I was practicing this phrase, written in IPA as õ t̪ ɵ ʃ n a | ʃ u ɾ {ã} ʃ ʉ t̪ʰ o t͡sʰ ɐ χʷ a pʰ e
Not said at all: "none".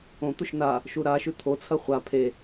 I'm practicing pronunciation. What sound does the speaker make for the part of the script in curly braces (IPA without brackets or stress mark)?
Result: a